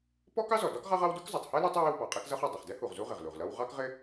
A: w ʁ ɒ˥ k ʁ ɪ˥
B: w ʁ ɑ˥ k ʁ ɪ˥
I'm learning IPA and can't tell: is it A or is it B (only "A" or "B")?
B